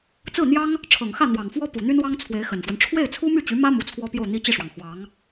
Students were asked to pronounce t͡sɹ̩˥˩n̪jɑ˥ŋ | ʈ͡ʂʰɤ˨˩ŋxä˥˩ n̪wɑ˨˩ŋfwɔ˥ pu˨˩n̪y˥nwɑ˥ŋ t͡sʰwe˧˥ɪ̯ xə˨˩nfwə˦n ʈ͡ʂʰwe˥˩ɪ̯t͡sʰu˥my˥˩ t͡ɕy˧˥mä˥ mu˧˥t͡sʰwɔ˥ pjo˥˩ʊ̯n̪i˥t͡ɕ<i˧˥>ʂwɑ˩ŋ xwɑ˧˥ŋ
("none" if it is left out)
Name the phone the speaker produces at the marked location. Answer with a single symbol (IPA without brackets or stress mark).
i˥˩